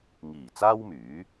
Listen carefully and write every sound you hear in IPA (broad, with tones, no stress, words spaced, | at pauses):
ŋiː˨˩ t͡saː˥wmyː˨˥